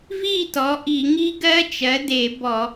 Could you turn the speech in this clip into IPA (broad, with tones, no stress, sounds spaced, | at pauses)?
v i˥˨ t ɔ˩˥ ʔ i˧˩˧ ŋ i˦˥ ɡ ɜ˦˥ t͡ʃ ɜ˩˥ d e˧˩˧ b ɔ˧˩˧